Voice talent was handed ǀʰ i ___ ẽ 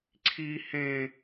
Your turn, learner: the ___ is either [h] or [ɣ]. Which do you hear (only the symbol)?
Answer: h